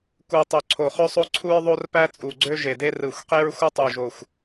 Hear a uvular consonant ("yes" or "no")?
yes